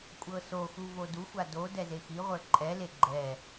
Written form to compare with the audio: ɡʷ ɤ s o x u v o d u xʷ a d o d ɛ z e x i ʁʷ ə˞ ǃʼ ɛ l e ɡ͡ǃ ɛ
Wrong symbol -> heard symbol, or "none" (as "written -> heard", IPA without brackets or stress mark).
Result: ɡʷ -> kʷʼ